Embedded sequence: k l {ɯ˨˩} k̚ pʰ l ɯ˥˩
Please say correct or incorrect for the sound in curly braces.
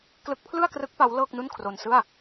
incorrect